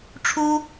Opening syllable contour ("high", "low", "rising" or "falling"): high